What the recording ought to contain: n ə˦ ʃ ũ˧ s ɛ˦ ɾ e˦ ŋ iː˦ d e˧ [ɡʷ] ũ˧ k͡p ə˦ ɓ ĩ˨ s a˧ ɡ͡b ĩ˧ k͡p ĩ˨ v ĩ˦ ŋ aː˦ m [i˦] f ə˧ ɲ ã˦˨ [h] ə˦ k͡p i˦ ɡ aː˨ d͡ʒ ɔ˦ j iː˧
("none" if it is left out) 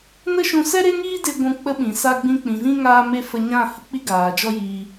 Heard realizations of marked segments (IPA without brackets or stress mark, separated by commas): ɡʷ, e˦, h